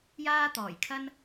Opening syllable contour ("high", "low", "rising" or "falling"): high